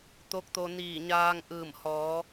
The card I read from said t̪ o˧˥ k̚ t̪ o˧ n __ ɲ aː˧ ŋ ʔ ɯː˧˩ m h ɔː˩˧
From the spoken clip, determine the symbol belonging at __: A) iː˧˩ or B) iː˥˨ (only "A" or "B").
A